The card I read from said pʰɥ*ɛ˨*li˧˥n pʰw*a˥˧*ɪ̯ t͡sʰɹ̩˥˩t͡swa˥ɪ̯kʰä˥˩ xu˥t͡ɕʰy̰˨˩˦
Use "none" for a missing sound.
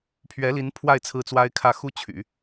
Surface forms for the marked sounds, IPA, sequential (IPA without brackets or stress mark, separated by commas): ɛ˧˥, a˥˧